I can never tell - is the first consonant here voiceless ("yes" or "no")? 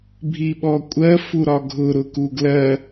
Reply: no